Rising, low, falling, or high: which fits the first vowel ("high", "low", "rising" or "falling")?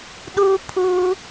high